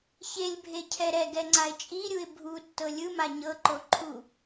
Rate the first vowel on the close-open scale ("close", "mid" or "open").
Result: mid